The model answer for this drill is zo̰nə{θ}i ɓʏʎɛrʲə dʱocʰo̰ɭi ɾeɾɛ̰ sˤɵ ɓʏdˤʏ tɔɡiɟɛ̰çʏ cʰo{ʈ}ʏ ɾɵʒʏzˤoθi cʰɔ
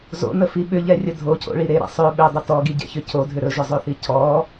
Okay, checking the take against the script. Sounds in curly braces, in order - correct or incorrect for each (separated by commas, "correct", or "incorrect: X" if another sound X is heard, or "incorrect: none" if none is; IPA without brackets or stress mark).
incorrect: f, incorrect: dʱ